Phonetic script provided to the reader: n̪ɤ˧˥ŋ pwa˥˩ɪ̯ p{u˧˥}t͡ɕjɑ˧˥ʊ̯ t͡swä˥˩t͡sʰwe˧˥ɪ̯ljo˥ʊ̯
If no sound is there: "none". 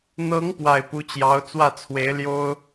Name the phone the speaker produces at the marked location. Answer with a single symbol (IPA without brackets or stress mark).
u˧˥